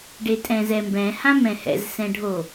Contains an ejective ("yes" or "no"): yes